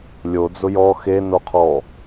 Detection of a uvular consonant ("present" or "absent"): present